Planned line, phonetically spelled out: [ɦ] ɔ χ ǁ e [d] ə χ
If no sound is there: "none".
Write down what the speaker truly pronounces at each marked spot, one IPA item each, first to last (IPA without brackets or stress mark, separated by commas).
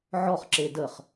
ʕ, d